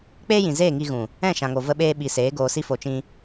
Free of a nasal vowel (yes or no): no